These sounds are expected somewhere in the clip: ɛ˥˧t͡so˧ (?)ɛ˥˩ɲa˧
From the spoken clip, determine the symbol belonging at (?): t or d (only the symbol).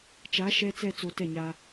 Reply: t